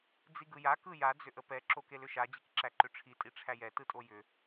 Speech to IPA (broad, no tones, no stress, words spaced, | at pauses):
d͡ziɡɯja kɯja d͡zʏʔəpɛ ǁokelʏʃa d͡ʑikǁæǃʏʈ͡ʂʰi tʼiʈ͡ʂʰæjɛ tɯtʼojʏ